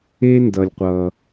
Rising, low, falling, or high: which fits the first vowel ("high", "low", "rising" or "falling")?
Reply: high